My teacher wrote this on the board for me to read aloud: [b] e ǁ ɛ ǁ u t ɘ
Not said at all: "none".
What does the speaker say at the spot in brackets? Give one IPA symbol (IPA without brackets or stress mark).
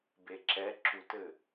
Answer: b